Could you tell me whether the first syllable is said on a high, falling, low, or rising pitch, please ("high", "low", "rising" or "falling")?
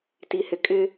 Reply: low